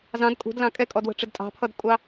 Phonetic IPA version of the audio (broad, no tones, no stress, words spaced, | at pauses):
zɑ̃d kʼṳdlɑ̃ kʼɛkʼɔdwə̤ʈ͡ʂɪd tʼɑ̤pʰʌdkʷʼɑ